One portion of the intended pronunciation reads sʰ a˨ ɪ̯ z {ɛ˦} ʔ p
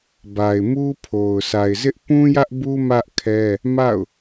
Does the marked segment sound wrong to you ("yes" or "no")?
yes